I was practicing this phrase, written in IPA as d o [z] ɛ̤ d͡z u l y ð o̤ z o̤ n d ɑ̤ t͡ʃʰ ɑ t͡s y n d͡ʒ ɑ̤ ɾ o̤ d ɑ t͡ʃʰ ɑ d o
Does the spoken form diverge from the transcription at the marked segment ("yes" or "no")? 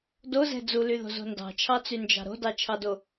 no